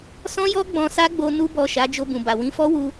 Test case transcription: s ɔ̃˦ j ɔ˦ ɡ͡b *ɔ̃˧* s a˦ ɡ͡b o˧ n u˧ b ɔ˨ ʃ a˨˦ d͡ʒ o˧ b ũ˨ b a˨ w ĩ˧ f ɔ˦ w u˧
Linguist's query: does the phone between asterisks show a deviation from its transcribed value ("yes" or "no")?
no